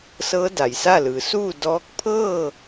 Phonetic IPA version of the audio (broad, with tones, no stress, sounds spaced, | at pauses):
s ɤː˧˥ d a˩ j s a˥˨ l ɯː˩˧ s uː˥˨ d ɔː˧˥ k̚ pʰ ɤː˥˨